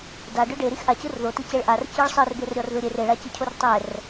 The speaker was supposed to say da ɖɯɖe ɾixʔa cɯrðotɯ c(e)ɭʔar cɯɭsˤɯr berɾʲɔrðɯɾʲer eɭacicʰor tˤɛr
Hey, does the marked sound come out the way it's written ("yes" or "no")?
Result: yes